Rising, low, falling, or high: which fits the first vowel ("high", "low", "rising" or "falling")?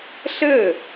falling